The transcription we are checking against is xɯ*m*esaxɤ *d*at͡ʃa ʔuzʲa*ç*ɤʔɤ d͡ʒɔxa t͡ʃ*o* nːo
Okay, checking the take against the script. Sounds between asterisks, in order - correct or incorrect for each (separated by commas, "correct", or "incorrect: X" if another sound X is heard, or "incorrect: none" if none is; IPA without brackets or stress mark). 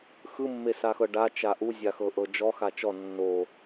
incorrect: mː, incorrect: ɖ, incorrect: x, incorrect: ɔ